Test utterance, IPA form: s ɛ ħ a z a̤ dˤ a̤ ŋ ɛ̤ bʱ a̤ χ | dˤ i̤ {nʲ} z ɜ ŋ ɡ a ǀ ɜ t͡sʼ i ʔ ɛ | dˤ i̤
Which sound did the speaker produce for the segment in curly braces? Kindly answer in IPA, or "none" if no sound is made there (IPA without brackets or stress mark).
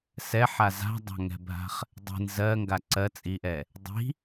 n